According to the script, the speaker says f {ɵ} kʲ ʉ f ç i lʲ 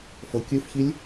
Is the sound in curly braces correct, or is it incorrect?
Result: incorrect: ɤ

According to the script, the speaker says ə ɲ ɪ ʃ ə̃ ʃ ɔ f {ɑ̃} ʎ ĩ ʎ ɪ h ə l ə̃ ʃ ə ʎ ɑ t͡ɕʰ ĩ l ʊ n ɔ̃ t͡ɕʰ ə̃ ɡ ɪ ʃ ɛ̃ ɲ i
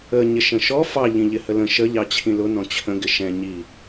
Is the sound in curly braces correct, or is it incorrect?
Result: incorrect: ɑ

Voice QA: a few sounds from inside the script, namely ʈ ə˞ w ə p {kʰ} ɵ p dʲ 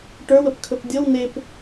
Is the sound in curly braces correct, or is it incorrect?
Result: correct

